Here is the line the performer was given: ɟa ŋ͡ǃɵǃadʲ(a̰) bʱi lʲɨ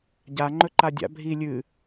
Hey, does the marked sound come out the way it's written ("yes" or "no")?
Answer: yes